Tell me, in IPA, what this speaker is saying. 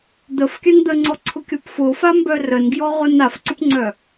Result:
d̪ ə f kʲ a n d̪ ə ŋ͡ǀ ɔ ǀʰ ʊ kʲ ɔ p f ʊ f a m b œ r ə n ɡ j ɔ ʁ ʊ n a f ǀ ʊ p ŋ͡ǀ œ

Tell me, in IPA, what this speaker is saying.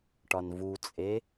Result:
ʈ ɒ n v u t͡sʼ e

